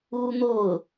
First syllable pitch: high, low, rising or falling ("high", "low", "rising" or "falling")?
high